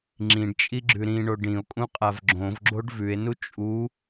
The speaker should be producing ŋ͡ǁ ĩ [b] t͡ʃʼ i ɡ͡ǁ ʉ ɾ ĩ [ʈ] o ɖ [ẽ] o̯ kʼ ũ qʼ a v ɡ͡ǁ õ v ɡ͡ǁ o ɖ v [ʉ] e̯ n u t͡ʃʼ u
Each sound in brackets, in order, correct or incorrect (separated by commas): incorrect, incorrect, incorrect, correct